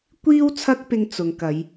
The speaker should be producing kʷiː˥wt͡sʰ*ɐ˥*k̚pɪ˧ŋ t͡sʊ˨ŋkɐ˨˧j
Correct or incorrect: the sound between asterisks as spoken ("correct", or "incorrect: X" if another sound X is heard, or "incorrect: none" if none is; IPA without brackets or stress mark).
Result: correct